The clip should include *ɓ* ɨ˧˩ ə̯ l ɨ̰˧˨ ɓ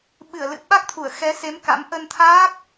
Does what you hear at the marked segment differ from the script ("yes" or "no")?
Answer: no